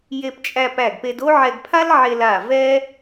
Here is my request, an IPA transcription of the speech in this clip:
j e˧ p t͡ʃʼ æ˧ p æ˧˩ ɡ p e˧ d o˥ ʕ ɛ˧ ɡ pʰ a˥ l ʕ e˧ l a˧˩ v ɛ˥

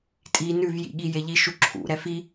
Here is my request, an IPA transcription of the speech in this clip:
tʼ i n ʉ v j ḭ ɠ i j e ʎ i ʃ u ǁʰ ṵ ɾ ɛ f i

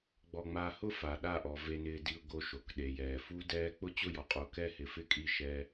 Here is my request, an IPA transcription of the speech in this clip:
ɡ͡b ɔ˨ ŋ͡m a˨ h ʊ˦ f a˨ ɗ a˦˨ ʔ ɔ˨ v e˨ n ɪː˨ d i˨ ʊ̯ ɡ o˨ ʃ o˨ k ɗ e˨ j ɛː˨ f u˦ d ɛː˦ k͡p ʊ˦ t͡ɕ ʊ˦˨ j ɔ˨ qʼ o˨ k ɛ˦ h ɪ˨˦ f ɪ˦ kʼ i˦˨ ʃ ɛ˦

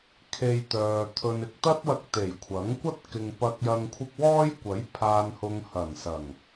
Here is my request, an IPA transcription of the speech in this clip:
kʰ e˧ j t̪ œː˨ t̪ʰ ɵ˨ n ɪ˧ k̚ t̪ ɐ˥ t̚ w ɐ˧ k̚ t̪ e˨˩ j kʷʰ ɐ˨˥ ŋ kʷ ɐ˥ t̚ k ɪ˨ ŋ p ɐ˨ k̚ j ɐ˨ ŋ kʷʰ ɪ˧ k̚ w ɔː˥ j kʷ ɐ˨˥ j pʰ aː˨ n h ʊ˨ ŋ h ɐ˨˩ n s ɐ˨˩ ŋ

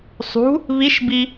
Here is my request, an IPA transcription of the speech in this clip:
sˤ ṳ | β i ʃ b i

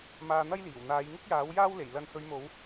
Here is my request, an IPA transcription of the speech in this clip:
m aː˧ n̪ ɐ˥ j l iː˨˩ w n̪ aː˨˧ j ŋ ɪ˥ k̚ j aː˨˥ w j aː˥ w l e˨˩ j l ɐ˨˧ n h ɵ˨˧ ɥ m o˨˧ w

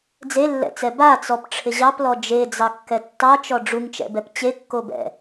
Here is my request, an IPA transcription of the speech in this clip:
d͡z e lː ɛ̰ t͡s ɛ b a t͡s ɔ p ʈ͡ʂʰ ɪ ʑ ɑ p l ɔ d͡ʒ e d͡z ɑ kː ɛ tː ɑ t͡ʃ ɔ ɖ͡ʐ u ŋ t͡ʃ ɛ̰ b ɛ p t͡ɕ e kː o b ɛ̰

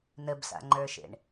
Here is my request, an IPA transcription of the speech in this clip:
n ə b s a̰ ŋ͡ǃ ə˞ ʃ ḛ ɳ

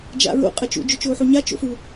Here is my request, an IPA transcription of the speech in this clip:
d͡ʒ a̰ ɹ o̰ qʼ ɐ t͡ʃ ṵ d͡ʒ ɵ t͡ʃ oː ħ o ɲ a t͡ʃ o̰ f u

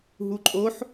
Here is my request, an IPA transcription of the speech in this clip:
ɦ u ǃʼ o ħ

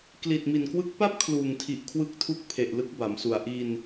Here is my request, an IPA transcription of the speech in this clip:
k l i˨˩ t̚ m i˨˩ n k w ɯ˦˥ k̚ p a˥˩ p̚ kʰ l uː˨˩ ŋ tʰ i˨˩ ʔ kʰ w ɯ˦˥ k̚ tʰ u˦˥ k̚ pʰ e˨˩ ʔ l ɯ˦˥ k̚ b a˩˦ m s u˨˩ a̯ ʔ i˧ n

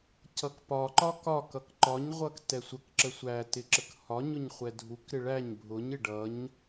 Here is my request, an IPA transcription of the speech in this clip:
c ʌ k p ɒ ǃ ɒ k ɒ k ʌ k ǃ ɒ ɲ ʁʷ ʌ k t ɛ sʷ ə k ǁ ə sʷ æ t ɪ ǁ ə k h ɒ ɲ ʊ ɲ χʷ ɛ dʱ u k ɾ ɪ ɭ æ ɲ bʱ ʊ ɲ ɪ ɖ ʌ ɲ

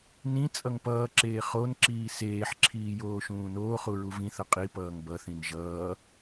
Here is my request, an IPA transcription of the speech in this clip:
n ĩ t͡sʼ ʌ ŋ p ʌː ǁ eː χ o n ǁ iː s eː ħ ǁʰ iː j oː ʃ ũː n oː χ u ɹ u v ĩ θ ʌ qʼ i p ʌː ŋ b ʌ θ ĩ n ʒ ʌː

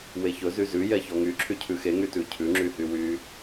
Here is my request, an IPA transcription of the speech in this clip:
w e ç ɵ z y z ʉ j ɛ ç ɔ ŋ y ǁʰ y cʰ ʉ x e ŋ y t ʉ cʰ ʉ ŋ͡ǁ y h y w y

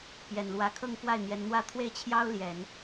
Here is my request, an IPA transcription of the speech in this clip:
p j ɛ˨˩ n l w ä˧˥ kʰ ɤ˥˧ ŋ k w a˥˩ ɪ̯ n̪ j ɛ˧˥ n n̪ w ä˥ t̪ʰ w e˥˩ ɪ̯ t͡ɕʰ j ɑ˥ ʊ̯ l j ɛ˨˩˦ n

